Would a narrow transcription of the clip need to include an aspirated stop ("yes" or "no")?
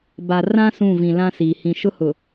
no